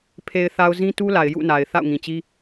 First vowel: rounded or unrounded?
unrounded